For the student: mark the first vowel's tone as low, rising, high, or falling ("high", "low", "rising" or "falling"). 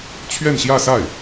falling